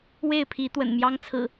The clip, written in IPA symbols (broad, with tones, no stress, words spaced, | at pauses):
we˥˨ɪ̯pʰi˨˦ t̪wə̰˨˩nmjɑ˦ŋ t͡sʰɹ̩˨˩